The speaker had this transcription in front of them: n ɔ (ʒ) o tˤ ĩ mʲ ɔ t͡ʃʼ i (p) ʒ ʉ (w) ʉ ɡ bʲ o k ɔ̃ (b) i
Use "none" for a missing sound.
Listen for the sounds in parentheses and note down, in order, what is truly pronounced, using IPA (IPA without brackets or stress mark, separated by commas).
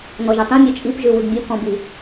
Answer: ʒ, p, w, b